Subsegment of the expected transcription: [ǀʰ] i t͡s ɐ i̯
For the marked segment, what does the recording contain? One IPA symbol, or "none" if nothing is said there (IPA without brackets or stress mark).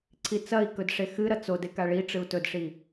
ǀʰ